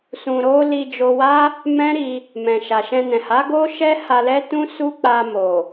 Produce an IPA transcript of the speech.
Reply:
s ũ˧ ɾ o˦ l i˧ d͡ʒ o˧ w a˦ | m ɛ̃˦ ɾ i˧ | m ɛ̃˨ ʃ a˨ ʃ ɛ̃˧ n ɛ̃˨ h a˨˦ ɡ o˦ ʃ ɛ˦ h a˧ l ɛ˦ t ũ˦ s u˦ k͡p a˧ m o˨

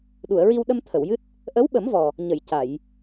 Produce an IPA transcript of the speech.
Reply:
ɗ u˨˩˨ ə̯ ɹ i˧ w ɗ ə˧ m t̪ʰ ə˨˩˨ w j ɨ˦˥ t̚ | ʔ ə˧˥ w ɓ ə˨˩˦ m v ɔ˨˩ | ɲ ə˨˩˨ j c a˨˩˨ j

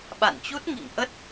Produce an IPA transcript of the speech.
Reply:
ɓ a̰˧˨ n t͡ɕ u˦˥ t̚ ŋ ḭ˧˨ ŋ ʔ ə˦˥ t̚

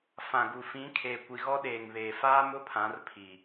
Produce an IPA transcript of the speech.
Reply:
f ã˨ ɡ u˨ f ĩ˨˦ kʰ eː˨ kʷ i˨ ɣ ɔ˦ ɗ eː˨ ŋ β eː˨ f aː˦ m ʊ˦ pʰ ã˨˦ r pʰ i˨

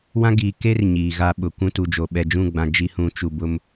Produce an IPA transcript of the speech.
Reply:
w ã˦ ɡ iː˨ k e˦ r ɲ iː˨ ɣ a˦ ɓ ʊ˨ kʷ ũ˦ t u˨ d͡ʒ o˨ ɓ ɛ˨ d͡ʒ ũ˦˨ ɡ͡b ã˨ d͡ʒ i˦ h ũ˨˦ t͡ʃ u˨ b ʊ˨ m

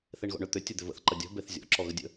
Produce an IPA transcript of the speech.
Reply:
θ e ɳ ɣ ɔ̰ ɳ ʏ t̪ ʏ tʲ ɯ d̪ ʏ v ə̰ θ ǃ ɐ dʲ ɔ̤ b e θ zʲ ɔ̰ ǁ ɔ ɣ ə dʲ ə̰

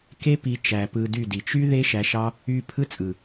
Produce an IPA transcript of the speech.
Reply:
k e˦ p i˧ t͡ʃ æ˨ p ɯ˧ d y˦˨ d i˨ t͡ʃ y˦ ð e˦ ʃ æ˧ ʃ ɑ˦ | y˧ pʰ ɯ˦ t͡sʼ ɯ˨

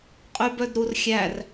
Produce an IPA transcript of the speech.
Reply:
qʼ y b œ d ɾ u r xʲ æ r

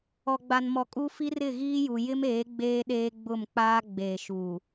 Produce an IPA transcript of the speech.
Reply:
ɔ˨ ɡ͡b a˨ n m ɔ˨ kʼ u˦ f i˦ r ɪ˦˨ ɣ iː˦ j u˨ j ɪ˦ m eː˨˦ ɡ͡b eː˦ ɗ eː˦ ɡ͡b ʊ˦˨ m k͡p aː˦ ɡ͡b eː˨ ʃ uː˨

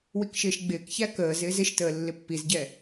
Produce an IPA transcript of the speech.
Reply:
w i k ʃ ɪː ʃ ɡ͡b ɪː k ç æ k əː z ɪː z ɪ ʃ t əː lː ɪ pː i z ɟ ɛ

